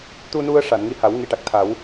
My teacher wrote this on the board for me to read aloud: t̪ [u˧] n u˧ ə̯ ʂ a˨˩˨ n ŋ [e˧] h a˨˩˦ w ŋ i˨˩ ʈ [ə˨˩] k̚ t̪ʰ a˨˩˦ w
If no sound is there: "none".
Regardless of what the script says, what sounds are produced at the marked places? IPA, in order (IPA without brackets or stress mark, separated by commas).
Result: u˧, i˧, a˨˩